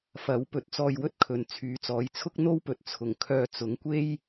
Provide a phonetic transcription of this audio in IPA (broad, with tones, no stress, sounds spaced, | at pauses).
f ɐ˨˥ w p ɵ˨˥ t̚ t͡s ɔː˧ j w ɵ˥ t̚ kʰ ɵ˨ n t͡sʰ yː˨˥ t͡s ɔː˨˥ j t͡sʰ ʊ˥ k̚ n̪ o˥ w p ɵ˨ t̚ t͡sʰ ʊ˨˩ ŋ kʰ œː˨ t͡s ʊ˨˥ ŋ kʷ e˥ j